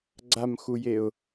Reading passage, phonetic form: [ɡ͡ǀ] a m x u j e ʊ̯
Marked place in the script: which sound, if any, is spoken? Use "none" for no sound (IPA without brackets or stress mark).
ɡ͡ǀ